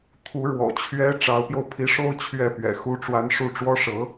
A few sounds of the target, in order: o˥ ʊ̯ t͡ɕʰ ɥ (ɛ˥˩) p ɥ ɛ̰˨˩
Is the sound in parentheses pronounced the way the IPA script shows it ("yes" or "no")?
yes